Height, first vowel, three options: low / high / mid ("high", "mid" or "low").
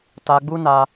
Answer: low